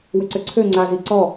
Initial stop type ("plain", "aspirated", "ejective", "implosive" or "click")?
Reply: click